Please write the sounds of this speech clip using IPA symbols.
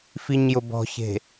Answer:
fiɲjʊbɔ̤çe̤

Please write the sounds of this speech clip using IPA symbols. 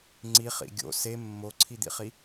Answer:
ŋ͡ǀiχḭ ɡʲo̰ se mːoǀʰid̪ḭχi

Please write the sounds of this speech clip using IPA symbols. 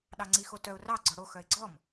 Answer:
ɗɑŋ͡ǀixotœʊ̯ rɑ ɡ͡ǀɔɽo xœɪ̯ɡ͡ǀɔm

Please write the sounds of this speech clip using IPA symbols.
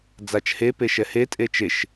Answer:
d͡zat͡ʃhe peʃɛhe tʼet͡ʃeʃ

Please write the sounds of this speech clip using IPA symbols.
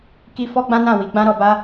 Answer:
ki˧ fɔ˦ɡ͡bã˦nã˦˨ wi˨˦ɡ͡bã˦ɾɔ˧ba˦

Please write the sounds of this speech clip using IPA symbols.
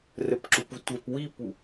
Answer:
rəpǁupu tʷɛp wipu

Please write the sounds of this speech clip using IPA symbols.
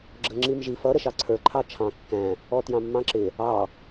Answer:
ɡ͡ǁəŋ͡ǁimʒi fʌ ɾəʃɑǀʰə˞ ǃʰɑt͡ʃʰɑ̃ kːæ̃ | ɔtjɑ̃mːɑ̃ǁɪ | ɑ

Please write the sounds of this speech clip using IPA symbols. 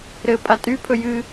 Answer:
ɾɘ pʼatʼypʰɵ jɨ

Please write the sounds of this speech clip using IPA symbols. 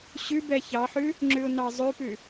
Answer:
ɕʉbɛ çɑħʉ | ŋ͡ǁʉʊ̯nɑzˤʉpʉ

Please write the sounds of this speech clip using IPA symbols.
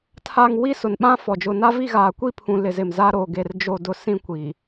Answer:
tʰa˨ŋ wi˦sʊ˨n ɓã˦fɔ˨ d͡ʒʊ˨na˦vi˦˨ɣaː˨ kʷi˦pʰũ˨ lɪ˨zɪ˨mzaː˦ ɾo˨ɡe˨r d͡ʒo˦˨dʊ˦sĩ˦kʷi˨

